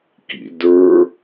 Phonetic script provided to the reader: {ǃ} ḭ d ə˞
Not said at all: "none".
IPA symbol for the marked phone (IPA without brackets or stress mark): k